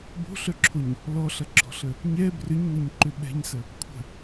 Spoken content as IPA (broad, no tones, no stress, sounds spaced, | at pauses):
b o̤ ɬ œ ǁʰ o ɲ | l ɔ ɬ ɐ ɡ͡ǁ ɔ̤ ɬ ə | ɲ ɛ b r ʏ ɲ n ə ɲ ǃ ʏ ɓ ɛ̤ ɲ s ə | kʷʰ ə̤